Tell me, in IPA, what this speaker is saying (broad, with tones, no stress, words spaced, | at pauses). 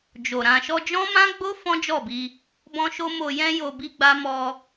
d͡ʒo˨ ɾã˨ʃɔ˧d͡ʒɔ̃˦ mã˦ɡ͡bo˦ fɔ̃˦d͡ʒɔ˦˨bi˧ | bɔ̃˦ʃo˦ mo˧jɛ̃˦ jo˧bi˦ɡ͡ba˦ mɔ˧